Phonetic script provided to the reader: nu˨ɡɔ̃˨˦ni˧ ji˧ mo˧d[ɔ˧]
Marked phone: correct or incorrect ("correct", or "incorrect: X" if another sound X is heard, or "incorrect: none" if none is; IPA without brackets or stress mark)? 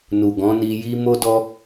correct